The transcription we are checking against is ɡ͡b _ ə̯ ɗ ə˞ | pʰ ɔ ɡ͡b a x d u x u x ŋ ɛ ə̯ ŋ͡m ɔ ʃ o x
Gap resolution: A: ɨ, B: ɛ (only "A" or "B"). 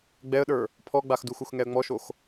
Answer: B